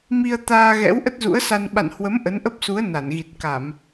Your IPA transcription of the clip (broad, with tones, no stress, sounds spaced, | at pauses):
m i˧ ə̯ t̪ aː˧ ɣ ɛ̰˧˥ w ʔ ə˦˥ t̚ z ṵ˧˥ ə̯ s a˧ n ɓ a̰˧˨ n h w ə˨˦ m ʔ ə˨˦ n ʔ ə˦˥ p̚ s u˨˦ ə̯ n a˧˩ n ɣ i˨˩ t̚ k a˧˩˨ m